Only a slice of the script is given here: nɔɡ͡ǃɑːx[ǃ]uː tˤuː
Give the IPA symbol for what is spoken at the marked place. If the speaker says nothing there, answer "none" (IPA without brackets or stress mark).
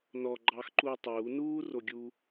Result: ǃ